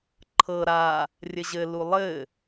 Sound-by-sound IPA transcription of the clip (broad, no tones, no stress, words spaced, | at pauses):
ǃʰɤ ɾa | rʲɘʑɘ lulˠɘ